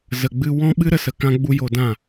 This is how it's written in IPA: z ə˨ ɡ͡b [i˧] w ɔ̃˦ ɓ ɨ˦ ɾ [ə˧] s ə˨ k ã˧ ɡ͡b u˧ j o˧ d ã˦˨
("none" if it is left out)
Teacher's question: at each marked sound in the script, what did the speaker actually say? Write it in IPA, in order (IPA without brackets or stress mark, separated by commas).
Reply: ɨ˧, ə˧